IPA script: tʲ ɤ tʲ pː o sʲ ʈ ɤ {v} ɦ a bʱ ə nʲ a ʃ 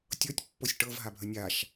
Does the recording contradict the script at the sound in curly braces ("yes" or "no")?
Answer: no